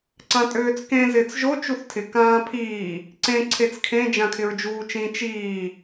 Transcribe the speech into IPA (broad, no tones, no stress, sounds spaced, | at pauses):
ǀ ã tʼ øː t͡s k ẽ z ɪː t͡s ʒ o t͡ʃ u θ tʰ ɪ k ãː pʰ iː | ǀ ẽ ǀʰ e t͡s kʰ ẽ d͡ʒ ã kʰ ɪ ɹ d͡ʒ uː t͡ʃ ĩ t͡ʃ iː